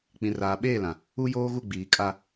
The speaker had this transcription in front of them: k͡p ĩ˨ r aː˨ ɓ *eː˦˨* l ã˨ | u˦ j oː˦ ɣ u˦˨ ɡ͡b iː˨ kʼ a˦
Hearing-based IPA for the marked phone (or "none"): eː˦˨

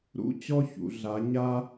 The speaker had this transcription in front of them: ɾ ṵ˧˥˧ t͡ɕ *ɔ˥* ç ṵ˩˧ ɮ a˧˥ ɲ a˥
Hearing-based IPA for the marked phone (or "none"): ɔ˥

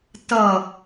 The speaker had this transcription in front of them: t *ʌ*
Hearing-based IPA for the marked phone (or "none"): ʌ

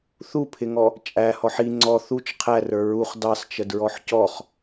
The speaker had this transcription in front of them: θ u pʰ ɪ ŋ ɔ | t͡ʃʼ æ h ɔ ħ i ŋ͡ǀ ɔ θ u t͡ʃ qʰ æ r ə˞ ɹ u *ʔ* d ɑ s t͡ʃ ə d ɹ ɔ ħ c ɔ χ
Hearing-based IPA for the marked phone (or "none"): χ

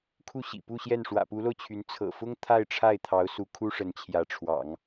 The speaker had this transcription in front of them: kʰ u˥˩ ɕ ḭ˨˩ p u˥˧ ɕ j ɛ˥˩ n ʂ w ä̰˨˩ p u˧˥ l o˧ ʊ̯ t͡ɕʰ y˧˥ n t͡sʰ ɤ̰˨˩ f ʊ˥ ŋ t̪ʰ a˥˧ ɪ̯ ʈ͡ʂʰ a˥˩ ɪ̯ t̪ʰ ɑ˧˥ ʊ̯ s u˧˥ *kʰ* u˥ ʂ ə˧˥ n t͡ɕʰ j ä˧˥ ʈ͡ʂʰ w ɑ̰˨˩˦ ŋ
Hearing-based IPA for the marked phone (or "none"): kʰ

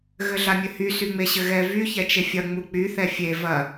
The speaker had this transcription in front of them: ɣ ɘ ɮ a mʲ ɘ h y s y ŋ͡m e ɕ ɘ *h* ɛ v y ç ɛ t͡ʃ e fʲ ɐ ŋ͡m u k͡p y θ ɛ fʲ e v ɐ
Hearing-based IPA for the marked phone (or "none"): ɣ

